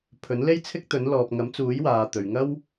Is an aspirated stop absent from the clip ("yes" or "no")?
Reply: no